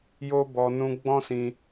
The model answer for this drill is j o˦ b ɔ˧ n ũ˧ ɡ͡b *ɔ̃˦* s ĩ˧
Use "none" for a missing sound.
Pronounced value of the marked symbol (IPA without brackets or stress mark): ɔ̃˦